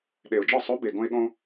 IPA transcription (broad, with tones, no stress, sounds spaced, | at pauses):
ɗ e˨˩ ʊ̯ d͡ʒ ɒ˥˩ sˤ o˧˥ b e˨˩ ɡ õ˧ ɪ̯ ɠ õ˧